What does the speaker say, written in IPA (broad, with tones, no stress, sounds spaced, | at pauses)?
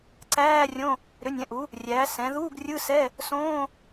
ǀ æː˧˥˧ rʲ õ˧˥˧ | ɾ ʏ˩˥ nʲ ɛ̃˩˥ ʔ u˩˥ | rʲ æː˩˥ s ɛ̃˩˥ ð uː˧˥˧ ɡ rʲ ɯ˧˥˧ s ɛ˧˥˧ | s õː˧˥˧